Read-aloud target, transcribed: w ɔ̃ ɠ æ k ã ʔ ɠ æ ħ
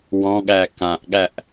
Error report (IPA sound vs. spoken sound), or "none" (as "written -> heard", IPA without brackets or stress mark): ħ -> ʔ